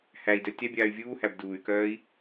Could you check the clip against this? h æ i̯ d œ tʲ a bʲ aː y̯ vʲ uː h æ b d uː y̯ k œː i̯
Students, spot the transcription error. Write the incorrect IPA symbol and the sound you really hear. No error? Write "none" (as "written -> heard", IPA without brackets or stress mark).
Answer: none